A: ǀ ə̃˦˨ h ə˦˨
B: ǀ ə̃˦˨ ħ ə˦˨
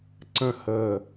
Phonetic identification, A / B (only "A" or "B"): A